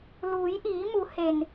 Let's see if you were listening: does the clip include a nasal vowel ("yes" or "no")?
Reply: no